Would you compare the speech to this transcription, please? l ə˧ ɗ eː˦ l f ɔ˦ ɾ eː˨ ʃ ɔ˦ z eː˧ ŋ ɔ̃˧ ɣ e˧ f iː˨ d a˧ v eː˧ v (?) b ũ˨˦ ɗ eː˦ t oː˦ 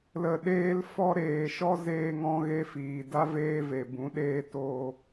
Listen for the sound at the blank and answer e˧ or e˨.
e˨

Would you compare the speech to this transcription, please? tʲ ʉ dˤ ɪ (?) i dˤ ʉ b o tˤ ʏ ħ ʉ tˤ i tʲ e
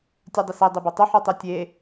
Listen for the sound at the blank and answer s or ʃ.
s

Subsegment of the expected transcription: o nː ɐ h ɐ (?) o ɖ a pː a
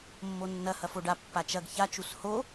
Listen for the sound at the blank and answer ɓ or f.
f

